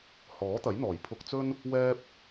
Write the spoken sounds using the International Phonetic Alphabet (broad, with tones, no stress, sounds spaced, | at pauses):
h ɔː˨˥ t̪ ɐ˨˥ j n̪ ɔː˨˩ j pʰ ʊ˧ k̚ t͡s ɵ˥ n | w ɛː˥ p̚